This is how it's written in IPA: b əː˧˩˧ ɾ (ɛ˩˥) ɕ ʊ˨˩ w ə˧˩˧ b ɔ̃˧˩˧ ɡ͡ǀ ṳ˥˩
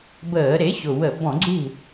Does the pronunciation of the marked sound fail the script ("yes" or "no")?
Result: yes